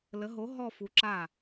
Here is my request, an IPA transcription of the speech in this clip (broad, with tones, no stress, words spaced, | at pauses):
lə˨˥ ɦo˨˥ ɦɔ˥˧fu˨˥ǁa˥˩